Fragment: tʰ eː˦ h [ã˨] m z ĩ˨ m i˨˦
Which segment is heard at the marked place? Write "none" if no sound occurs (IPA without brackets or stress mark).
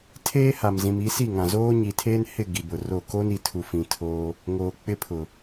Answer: a˨